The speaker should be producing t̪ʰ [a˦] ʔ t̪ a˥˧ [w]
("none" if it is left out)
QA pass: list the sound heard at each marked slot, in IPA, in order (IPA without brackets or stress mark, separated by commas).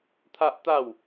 a˦, w